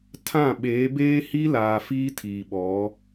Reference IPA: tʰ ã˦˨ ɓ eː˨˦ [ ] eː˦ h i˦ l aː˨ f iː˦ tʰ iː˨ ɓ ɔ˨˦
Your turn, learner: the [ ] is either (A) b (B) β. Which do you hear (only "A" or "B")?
A